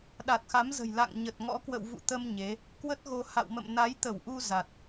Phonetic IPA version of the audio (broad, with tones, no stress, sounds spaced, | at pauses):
ɗ a˨˩ t̚ x a˨˦ m z ə̤˨˩ j l a̰˧˨ ŋ ɲ ə˨˩ t̚ ŋ ɔ̰˧˥ k w ə̰˧˨ w v ṵ˧˨ t̪ ə˧ m ɲ e˨˦ | k w ə˦˥ t̚ ɣ o˧ h a̰˧˨ w m ə̰˧˨ m n a˨˦ j t̪ ə˧˩ w ʔ u˧ z a˨˩ t̚